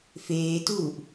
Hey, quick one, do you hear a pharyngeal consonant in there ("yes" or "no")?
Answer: no